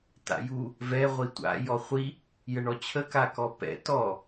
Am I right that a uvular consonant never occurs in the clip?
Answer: no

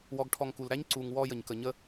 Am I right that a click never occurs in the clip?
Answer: no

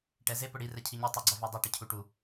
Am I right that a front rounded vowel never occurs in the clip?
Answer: yes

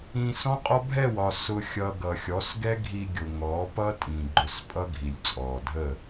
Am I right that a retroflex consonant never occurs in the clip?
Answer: yes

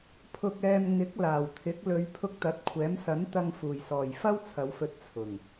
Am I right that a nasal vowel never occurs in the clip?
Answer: yes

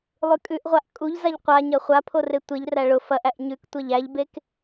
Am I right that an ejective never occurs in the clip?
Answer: no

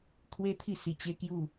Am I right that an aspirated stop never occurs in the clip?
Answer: no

